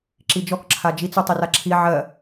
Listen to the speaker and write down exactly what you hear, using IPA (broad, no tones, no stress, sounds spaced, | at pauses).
ǁ i d͡ʒ ɔ k ǁʰ a d͡ʒ i t͡s u tˤ i r a ǁʰ i ʕ ɜ